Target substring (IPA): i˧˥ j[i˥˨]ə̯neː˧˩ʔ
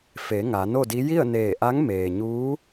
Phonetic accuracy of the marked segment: correct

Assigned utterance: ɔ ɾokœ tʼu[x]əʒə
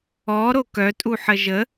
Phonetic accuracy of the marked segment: incorrect: ħ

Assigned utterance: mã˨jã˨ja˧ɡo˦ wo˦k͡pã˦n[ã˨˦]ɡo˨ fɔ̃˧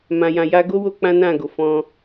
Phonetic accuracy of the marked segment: incorrect: ã˦˨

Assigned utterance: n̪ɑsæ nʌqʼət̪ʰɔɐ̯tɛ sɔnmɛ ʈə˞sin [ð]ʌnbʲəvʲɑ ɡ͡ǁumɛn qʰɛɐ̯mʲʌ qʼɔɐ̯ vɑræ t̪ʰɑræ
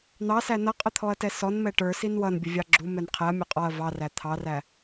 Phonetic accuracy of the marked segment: incorrect: w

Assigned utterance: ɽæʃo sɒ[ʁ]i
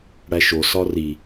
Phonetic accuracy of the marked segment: incorrect: r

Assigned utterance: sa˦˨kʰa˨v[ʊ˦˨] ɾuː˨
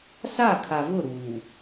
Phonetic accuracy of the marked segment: correct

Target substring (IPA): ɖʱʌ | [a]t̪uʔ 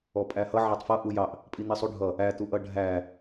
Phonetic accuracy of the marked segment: incorrect: æ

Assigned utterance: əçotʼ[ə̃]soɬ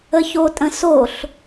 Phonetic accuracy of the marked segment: correct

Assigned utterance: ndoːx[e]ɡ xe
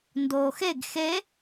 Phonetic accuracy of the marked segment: correct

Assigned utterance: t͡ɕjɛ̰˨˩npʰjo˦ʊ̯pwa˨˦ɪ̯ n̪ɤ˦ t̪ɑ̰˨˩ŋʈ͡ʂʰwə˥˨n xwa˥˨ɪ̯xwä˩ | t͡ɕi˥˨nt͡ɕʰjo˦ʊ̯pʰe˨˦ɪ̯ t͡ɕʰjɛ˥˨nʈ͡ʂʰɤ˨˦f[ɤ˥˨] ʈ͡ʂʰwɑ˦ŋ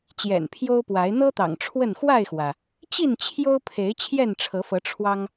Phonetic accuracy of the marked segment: incorrect: ɤ˨˦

